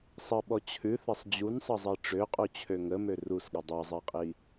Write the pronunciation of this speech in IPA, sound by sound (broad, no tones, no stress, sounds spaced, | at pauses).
sˤ ə ɓ ɔ t͡ɕʰ ʉ θ ɐ sˤ d͡ʑ u n sˤ ʌ zˤ e ʈ͡ʂ ø qʼ u t͡ɕʰ ø ŋ ə m ø r u s ɠ ə dˤ ʌ zˤ e qʼ i